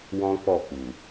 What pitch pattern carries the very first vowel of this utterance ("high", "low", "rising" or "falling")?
high